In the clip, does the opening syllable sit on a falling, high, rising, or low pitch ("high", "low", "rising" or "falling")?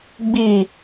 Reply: low